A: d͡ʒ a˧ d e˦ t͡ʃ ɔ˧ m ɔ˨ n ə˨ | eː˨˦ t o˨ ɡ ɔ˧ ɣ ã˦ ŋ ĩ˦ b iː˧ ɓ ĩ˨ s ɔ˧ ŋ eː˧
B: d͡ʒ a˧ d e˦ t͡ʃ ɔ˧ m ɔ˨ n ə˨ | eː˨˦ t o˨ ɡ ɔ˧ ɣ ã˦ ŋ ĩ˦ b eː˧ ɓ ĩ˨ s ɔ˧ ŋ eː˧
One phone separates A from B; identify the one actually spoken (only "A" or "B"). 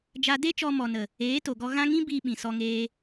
A